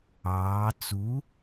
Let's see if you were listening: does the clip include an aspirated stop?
no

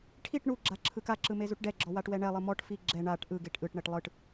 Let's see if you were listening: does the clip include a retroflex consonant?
yes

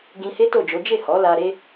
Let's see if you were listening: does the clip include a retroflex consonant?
no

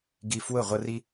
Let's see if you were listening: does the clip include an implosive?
no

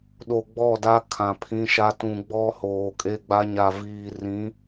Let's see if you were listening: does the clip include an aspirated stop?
yes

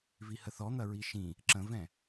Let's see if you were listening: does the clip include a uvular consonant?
no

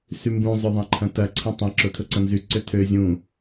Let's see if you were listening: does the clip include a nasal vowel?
yes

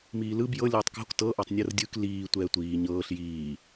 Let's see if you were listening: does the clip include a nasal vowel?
no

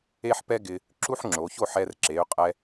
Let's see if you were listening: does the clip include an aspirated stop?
no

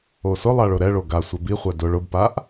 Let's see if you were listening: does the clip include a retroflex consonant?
yes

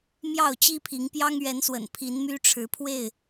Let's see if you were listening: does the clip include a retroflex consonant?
yes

